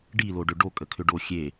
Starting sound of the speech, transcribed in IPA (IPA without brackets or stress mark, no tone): ɖ